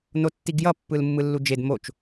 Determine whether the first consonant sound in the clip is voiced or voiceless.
voiced